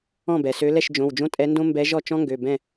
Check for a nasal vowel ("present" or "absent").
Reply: present